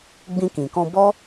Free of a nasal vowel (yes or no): no